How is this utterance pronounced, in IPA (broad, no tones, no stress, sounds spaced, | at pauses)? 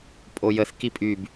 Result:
pʼ o j ə θ k i pʼ y b